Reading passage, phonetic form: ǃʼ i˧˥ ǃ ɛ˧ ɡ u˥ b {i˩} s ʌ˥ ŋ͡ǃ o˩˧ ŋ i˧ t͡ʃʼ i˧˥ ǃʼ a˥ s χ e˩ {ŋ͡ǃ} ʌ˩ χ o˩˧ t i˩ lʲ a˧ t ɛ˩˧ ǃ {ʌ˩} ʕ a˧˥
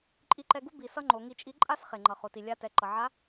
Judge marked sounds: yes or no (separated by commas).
no, yes, yes